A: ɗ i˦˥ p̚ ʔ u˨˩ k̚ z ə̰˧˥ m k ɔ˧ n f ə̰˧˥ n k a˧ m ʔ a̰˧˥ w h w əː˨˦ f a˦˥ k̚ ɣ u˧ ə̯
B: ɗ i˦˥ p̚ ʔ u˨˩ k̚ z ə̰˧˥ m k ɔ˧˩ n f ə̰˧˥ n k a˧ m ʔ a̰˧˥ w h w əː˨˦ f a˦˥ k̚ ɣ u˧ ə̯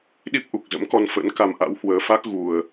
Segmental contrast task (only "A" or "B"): A